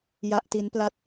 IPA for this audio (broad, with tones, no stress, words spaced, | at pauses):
ja˦˥ʔti˦˥npla˥˩t̚